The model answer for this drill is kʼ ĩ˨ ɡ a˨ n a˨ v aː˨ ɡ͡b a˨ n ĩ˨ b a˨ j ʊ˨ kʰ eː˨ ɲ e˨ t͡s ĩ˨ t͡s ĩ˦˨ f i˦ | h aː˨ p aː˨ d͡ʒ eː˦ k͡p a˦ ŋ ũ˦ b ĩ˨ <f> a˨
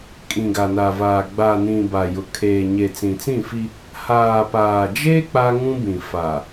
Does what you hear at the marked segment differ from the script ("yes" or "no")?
no